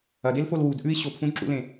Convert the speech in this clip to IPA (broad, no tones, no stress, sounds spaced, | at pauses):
ɐ d e l f o l w u d ʔ ʉ i̯ ɕ o p f ũ d ǁ ṵ l ẽ